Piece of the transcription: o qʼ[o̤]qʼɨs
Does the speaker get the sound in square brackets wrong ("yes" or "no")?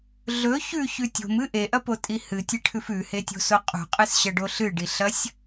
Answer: yes